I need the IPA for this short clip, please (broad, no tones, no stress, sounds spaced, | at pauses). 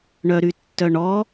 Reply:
ɳ œ ɾ y tː œ ɳ ɔ